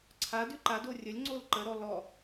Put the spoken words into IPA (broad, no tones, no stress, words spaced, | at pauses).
ǀʰa dʉǃado rʲəlʲŋ͡ǀol ǃəɾɔ lɔ